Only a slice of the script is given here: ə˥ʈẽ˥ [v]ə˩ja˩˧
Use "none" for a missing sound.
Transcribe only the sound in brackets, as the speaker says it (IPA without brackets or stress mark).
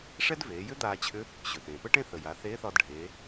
θ